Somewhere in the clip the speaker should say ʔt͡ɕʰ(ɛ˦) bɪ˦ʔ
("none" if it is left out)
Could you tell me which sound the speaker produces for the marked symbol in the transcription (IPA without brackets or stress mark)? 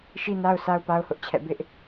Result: ɛ̰˦˨